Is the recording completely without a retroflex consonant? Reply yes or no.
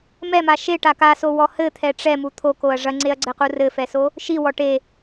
no